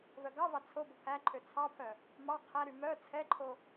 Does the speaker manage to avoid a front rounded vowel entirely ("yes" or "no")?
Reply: no